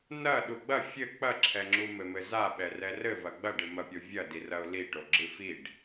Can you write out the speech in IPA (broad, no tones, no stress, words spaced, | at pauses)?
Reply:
nɐ ɗuɡ͡bɐ fʲɘ k͡pɐǁʰɛŋ͡ǁu mɘmɘza ɓɛrɛrɘ vɐɡ͡bɐɖɨ mɐpʲovʲɐdi rɐʊ̯liʈo ɡ͡ǁɨfiɖ